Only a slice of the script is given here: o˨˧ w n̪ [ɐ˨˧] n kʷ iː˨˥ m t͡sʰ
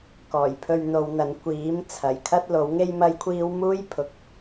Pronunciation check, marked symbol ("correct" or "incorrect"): incorrect